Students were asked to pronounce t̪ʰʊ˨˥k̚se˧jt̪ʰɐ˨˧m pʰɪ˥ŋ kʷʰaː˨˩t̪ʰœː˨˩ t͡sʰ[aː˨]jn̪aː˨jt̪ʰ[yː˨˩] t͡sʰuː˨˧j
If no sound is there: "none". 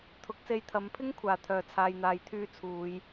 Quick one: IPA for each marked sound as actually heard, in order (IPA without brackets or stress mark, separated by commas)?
aː˨, yː˧